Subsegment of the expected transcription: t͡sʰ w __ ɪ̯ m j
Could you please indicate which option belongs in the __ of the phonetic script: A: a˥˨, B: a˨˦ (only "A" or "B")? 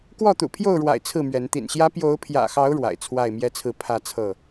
A